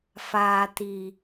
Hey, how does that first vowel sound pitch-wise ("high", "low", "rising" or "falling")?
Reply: low